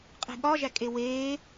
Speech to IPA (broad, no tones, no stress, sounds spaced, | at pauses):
qʼ e̤ ɠ ɒ ʒ æ kʼ e w eː